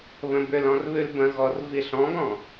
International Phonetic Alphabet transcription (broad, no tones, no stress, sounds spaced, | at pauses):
β ə̃ b ʏ l ɔ̃ r β ʉ l b ə̃ ɣ ɔ r v i ɬ ɔ̃ ɡ ɔ̃